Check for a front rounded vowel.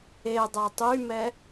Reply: present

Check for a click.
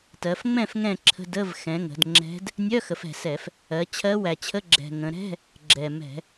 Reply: present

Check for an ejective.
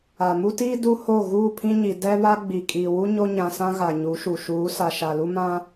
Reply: present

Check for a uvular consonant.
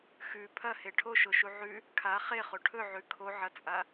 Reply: present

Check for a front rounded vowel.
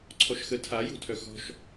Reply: present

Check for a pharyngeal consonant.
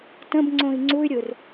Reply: absent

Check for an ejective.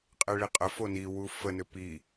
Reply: present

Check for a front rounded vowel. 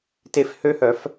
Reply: present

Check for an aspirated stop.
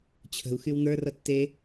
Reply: present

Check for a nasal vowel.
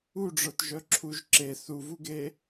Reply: absent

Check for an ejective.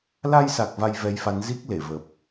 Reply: absent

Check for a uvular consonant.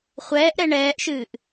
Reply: present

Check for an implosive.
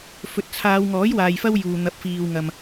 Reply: absent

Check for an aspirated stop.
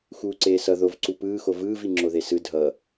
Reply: absent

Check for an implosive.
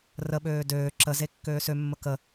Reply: present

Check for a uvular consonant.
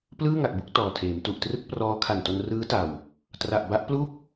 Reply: absent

